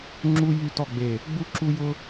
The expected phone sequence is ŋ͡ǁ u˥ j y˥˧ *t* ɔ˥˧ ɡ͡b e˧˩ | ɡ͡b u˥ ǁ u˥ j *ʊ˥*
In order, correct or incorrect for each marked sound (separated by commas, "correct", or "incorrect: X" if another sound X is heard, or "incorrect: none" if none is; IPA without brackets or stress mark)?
correct, correct